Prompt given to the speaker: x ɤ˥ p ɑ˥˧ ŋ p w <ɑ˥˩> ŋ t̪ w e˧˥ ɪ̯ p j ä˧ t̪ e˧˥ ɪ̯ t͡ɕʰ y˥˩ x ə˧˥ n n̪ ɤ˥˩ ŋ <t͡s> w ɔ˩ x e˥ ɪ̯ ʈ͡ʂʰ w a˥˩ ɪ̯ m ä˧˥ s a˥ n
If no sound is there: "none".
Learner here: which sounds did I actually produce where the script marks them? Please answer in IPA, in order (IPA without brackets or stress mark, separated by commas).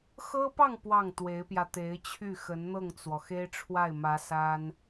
ɑ˥˩, t͡s